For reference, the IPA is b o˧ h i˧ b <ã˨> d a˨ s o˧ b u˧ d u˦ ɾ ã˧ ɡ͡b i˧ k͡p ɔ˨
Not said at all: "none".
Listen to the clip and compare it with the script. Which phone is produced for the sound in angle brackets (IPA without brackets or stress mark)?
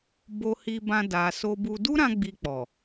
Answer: ã˧